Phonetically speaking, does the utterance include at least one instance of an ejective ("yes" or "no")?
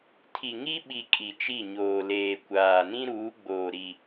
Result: yes